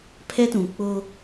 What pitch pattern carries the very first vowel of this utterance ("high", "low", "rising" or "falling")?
high